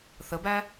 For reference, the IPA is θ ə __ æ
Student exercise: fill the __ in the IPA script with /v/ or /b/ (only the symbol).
b